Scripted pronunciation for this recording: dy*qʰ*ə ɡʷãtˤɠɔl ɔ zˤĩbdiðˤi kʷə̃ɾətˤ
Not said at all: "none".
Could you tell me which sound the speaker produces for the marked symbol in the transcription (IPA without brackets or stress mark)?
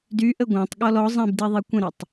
ʔ